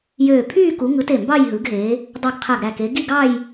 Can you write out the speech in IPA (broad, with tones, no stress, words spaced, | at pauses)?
jøː˧˩ pʰyː˥˧ku˨˦ ŋɯ˨˦te˧˩ mbɑ˥˧jɦɯ˨˦ɡɦe˨˦ | dˤu˧˩ɡqʰæ˧˩ɡɾæ˧˩ke˨˦ ɡi˥˧ɡɑ˥˧j